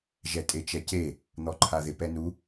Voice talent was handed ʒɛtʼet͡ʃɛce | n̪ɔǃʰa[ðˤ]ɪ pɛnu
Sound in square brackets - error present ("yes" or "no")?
yes